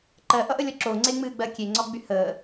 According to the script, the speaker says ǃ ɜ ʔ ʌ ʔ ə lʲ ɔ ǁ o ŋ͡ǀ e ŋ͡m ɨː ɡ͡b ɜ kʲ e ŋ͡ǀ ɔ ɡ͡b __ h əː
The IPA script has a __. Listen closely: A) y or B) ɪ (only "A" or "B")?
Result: A